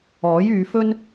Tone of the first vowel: rising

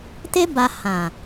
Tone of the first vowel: high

